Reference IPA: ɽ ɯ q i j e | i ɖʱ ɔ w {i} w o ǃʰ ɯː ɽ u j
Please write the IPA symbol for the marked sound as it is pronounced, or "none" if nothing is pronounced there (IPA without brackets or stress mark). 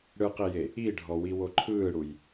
i